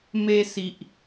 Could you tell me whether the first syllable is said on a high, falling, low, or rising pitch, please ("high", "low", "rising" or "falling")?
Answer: high